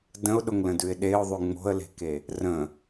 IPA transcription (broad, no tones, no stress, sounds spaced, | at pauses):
d ə̃ ʊ̯ ɗ ʊ ŋ l ə̃ d ʉ ɪ̯ ɗ e ʊ̯ ðˤ ʉ ŋ͡m o̤ ə̯ l e̤ k e | r ə̃